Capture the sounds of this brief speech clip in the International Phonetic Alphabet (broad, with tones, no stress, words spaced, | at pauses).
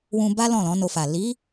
wũ˧ba˦ lɔ̃˦˨lɔ̃˨˦no˧fa˨ li˨˦